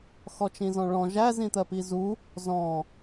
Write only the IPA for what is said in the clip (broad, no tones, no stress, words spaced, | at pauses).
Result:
xɔt͡ʃĩzɔ̃ɭɔ̃ ʒæ zĩt̪ɜpizu | zɔ̃